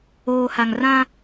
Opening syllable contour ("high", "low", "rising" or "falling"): low